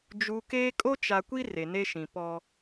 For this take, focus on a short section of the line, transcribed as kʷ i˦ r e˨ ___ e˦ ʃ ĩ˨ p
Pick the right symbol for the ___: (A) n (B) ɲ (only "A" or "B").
A